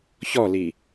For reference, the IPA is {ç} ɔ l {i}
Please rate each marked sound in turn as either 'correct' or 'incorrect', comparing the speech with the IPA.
correct, correct

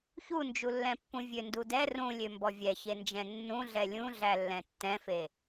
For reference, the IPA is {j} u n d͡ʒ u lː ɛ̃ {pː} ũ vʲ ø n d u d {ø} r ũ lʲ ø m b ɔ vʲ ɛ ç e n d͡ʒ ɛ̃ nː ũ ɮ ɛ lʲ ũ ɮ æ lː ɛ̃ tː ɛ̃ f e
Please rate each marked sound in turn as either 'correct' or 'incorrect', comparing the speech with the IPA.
incorrect, correct, incorrect

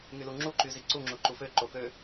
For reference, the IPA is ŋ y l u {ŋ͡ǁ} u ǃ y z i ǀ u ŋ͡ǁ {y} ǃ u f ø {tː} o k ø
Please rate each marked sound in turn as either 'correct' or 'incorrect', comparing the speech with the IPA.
correct, incorrect, incorrect

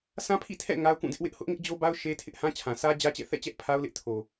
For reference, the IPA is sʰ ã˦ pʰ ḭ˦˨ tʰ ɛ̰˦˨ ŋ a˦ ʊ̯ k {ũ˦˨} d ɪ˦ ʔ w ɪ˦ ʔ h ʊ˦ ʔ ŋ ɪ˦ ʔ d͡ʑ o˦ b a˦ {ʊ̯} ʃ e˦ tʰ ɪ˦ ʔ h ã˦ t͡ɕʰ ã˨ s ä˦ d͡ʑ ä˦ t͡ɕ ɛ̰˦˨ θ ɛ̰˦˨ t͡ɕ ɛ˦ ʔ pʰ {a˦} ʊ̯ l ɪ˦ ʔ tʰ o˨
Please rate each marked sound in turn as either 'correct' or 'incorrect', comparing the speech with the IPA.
correct, correct, correct

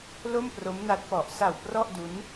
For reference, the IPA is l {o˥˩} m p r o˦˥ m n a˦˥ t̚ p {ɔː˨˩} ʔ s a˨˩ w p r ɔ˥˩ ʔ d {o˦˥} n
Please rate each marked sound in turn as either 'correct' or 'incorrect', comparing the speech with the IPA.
correct, incorrect, incorrect

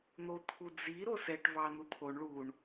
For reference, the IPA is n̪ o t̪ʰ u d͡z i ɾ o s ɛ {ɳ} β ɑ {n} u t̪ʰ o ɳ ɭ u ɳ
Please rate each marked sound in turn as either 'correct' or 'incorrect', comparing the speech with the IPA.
incorrect, correct

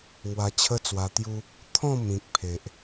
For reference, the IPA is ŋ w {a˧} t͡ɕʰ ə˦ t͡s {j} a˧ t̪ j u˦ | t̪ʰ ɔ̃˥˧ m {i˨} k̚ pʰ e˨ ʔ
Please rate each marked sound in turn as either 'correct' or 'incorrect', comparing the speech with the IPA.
correct, incorrect, incorrect

